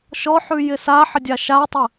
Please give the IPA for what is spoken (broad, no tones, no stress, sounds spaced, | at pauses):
ʃ ɔ ħ ʉ j ɪ s a ħ ə dʲ a ʃ a tˤ ə